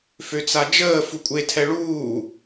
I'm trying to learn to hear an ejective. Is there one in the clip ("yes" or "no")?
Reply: yes